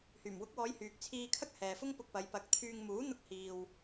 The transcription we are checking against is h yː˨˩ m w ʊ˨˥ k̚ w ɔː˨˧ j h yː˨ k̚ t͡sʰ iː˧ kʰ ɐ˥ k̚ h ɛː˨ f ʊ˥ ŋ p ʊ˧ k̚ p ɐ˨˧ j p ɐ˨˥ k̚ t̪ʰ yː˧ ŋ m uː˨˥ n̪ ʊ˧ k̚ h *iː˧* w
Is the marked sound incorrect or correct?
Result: incorrect: iː˨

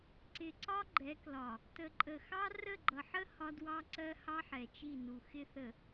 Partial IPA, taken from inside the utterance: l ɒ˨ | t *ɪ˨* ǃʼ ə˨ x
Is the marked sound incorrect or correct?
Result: incorrect: ə˨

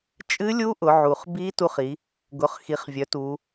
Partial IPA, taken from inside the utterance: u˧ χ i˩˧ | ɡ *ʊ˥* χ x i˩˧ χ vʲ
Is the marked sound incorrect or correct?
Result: incorrect: ʊ˩˧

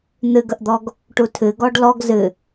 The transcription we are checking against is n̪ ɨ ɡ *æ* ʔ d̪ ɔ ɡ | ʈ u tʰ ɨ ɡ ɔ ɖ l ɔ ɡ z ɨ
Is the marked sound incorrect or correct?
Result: incorrect: ə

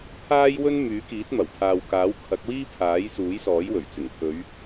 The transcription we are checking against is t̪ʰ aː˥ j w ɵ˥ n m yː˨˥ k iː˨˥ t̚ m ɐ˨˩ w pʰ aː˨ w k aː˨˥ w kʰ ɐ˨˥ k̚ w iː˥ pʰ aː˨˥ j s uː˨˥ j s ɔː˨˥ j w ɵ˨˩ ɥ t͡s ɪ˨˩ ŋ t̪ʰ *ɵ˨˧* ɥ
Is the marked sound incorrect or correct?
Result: correct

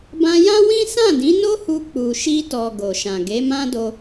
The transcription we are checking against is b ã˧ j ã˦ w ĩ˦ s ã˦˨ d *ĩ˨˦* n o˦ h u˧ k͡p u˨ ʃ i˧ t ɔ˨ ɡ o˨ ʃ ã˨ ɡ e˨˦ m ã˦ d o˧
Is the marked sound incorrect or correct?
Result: correct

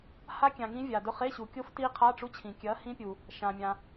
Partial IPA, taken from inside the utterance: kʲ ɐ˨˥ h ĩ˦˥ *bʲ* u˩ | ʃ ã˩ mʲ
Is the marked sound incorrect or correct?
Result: incorrect: pʲ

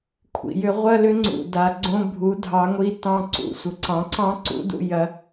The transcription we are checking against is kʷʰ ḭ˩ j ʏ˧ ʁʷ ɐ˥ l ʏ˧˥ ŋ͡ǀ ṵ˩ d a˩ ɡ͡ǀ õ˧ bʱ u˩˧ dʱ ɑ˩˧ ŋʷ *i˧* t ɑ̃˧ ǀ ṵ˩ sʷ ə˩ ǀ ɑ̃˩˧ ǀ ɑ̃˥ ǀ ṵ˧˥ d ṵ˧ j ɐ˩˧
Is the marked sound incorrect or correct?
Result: correct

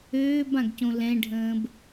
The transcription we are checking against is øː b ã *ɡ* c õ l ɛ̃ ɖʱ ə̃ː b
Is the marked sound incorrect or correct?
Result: correct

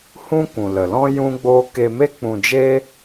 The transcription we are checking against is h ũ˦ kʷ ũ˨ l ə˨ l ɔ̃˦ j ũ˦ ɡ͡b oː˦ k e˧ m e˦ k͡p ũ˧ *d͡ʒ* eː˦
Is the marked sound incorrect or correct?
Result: correct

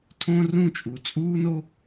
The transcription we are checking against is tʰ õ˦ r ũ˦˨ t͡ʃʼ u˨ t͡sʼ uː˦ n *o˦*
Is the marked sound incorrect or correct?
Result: correct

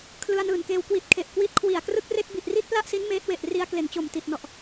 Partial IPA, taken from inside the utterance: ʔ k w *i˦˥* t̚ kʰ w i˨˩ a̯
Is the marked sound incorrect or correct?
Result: correct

